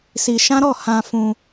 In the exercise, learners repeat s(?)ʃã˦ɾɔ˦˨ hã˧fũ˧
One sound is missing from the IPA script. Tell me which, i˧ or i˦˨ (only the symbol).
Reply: i˧